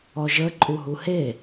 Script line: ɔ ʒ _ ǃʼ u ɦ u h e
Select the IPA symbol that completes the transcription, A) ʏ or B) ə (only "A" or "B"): B